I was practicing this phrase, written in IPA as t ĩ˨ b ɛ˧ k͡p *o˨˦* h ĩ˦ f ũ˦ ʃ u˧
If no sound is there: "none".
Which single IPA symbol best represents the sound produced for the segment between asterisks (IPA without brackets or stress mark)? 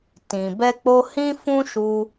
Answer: o˧